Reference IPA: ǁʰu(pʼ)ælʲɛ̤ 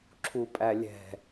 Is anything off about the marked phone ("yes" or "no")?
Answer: no